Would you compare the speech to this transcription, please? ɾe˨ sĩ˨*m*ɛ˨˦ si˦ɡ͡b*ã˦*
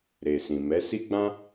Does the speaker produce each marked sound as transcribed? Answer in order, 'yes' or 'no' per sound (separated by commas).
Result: yes, yes